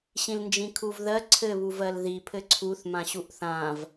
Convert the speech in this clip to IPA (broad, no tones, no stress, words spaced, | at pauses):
ɕĩlnd͡ʒĩkʰuvðɜ ǀʰɘ βuvɜlði pʰɘǀʰuθ mãɕuʔθãv